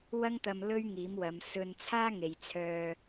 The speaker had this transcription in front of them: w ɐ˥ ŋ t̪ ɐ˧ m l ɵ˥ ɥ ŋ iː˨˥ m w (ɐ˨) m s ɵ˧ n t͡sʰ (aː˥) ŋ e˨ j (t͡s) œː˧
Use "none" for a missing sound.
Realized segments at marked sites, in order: ɐ˨˧, aː˥, t͡sʰ

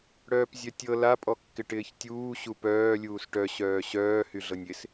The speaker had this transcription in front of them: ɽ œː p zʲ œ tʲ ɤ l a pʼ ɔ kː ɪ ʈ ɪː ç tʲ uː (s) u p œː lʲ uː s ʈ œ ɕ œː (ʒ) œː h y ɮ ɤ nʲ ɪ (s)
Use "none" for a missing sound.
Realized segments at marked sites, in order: ɕ, ɕ, s

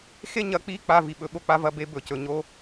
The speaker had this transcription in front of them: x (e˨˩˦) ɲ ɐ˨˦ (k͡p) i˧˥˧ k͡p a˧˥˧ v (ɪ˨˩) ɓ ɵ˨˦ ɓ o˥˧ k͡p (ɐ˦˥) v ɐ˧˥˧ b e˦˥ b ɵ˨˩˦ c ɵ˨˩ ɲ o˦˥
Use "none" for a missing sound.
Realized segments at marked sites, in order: e˥˧, k͡p, i˨˩, a˦˥

